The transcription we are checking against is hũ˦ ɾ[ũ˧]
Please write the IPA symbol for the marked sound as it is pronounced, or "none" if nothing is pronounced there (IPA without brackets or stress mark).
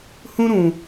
ũ˧